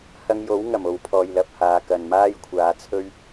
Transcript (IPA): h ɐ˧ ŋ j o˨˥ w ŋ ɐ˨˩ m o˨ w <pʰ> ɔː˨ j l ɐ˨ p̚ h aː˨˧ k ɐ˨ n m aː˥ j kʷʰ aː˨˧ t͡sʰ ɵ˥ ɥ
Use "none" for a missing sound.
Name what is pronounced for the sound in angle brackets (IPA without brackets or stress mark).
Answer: pʰ